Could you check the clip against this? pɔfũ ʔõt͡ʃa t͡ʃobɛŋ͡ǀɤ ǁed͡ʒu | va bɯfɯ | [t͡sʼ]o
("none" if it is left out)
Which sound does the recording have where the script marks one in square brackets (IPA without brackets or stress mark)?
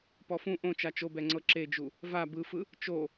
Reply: t͡ʃ